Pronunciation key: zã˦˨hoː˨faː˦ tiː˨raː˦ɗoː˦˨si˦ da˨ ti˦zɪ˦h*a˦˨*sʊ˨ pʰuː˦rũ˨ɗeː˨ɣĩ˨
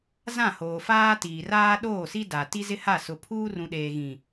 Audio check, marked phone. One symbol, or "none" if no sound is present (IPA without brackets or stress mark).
a˦˨